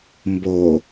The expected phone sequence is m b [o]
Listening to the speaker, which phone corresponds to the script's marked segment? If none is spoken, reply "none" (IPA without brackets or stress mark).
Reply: o